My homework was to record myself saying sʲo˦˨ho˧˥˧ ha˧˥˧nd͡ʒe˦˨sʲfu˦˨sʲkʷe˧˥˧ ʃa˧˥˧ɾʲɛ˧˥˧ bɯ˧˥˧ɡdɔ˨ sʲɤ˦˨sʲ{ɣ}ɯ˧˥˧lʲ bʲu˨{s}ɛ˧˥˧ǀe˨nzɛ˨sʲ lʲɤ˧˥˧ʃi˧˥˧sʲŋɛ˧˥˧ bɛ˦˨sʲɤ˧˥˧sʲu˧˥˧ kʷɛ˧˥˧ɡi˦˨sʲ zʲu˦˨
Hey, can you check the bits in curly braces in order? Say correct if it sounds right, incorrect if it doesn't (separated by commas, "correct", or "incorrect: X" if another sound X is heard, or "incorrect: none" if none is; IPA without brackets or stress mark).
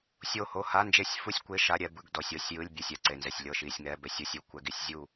incorrect: j, incorrect: sʲ